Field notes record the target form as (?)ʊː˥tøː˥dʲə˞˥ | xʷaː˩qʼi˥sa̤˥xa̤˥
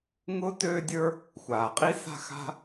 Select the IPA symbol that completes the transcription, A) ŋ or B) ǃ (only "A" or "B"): A